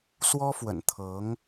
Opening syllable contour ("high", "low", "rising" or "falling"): high